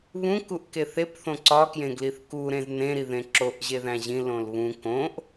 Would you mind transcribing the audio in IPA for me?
βũ kuʔkeθep θõǀɒkjẽɡliθ ku ɾẽznẽɾi ðẽǁoʔ ʑeðæ̃ʑĩ lõlβũ kõʔ

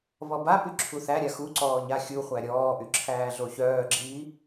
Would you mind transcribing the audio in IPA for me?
βɔbapy ǁʰuθæɾʲa xuǀɔː ɲaxʲuχʷæ ɾʲɔːʔy ǁʰæːɮoçœːɡ͡ǁiː

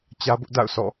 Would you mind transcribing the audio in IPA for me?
t͡ɕä˦bʊ˦ʔda̰˦˨ʊ̯sɔ̰˦˨

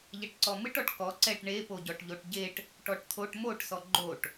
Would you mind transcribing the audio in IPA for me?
ʎɛʈǀɔmɨʈ ɔʈkɔ ǀɛʈ ɳe poɟɔʈʎoʈɟeʈ | ʈɔʈt̪ʰoʈ moʈ sɔɡ͡ǃoʈ

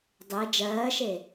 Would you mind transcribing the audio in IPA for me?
dˤe d͡ʒɜːʃe

